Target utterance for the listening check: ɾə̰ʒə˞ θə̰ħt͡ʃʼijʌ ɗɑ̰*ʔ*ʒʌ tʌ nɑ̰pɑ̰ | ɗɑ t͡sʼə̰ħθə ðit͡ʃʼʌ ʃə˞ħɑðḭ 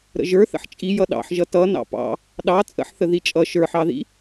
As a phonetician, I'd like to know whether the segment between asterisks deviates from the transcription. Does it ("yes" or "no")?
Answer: yes